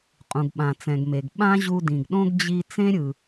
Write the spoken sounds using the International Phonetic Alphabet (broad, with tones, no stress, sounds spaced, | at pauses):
qʼ ũ˩ ɡ ɓ ã˩ t͡s ɛ̃˩ ɡ m e˩ ɡ ɓ ã˥ ʑ u˧ d ĩ˩ ɡ ɗ õ˥ ɡ d͡ʑ i˧ t͡s ẽ˥ ɾʲ ɯ˩